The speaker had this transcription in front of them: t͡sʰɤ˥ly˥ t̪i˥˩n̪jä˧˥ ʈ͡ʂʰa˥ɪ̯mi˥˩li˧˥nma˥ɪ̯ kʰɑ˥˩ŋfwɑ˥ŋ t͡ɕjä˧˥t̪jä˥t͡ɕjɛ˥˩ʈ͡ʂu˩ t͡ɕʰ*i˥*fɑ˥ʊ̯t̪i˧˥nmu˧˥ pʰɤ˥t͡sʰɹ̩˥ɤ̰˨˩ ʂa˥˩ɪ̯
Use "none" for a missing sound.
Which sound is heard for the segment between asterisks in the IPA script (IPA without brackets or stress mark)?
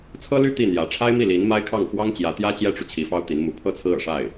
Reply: i˧˥